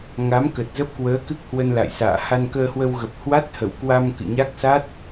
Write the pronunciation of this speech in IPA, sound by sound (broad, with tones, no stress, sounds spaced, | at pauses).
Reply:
ŋ a˨˦ m k ə˨˩ t̚ z ə˦˥ p̚ k w əː˨˦ k ɨ˦˥ k̚ h w ə˧ n l a̰˧˨ j s a̰ː˧˨ h a˧ n k əː˧ h w ə˧ w ɣ ə˨˩ p̚ h w a˦˥ t̚ h ə̰˧˨ w k w a˧ m k ɨ̰˧˨ ɲ a˦˥ k̚ s a˦˥ t̚